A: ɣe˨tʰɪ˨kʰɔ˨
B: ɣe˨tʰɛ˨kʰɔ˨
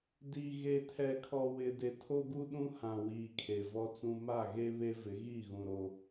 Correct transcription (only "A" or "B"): B